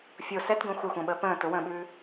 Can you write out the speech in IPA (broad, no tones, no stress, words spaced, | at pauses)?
fʲo sɛtɡõ xʷɛxʷə̃ːɓəː pə̃ː tʊwə̃ːɓʉː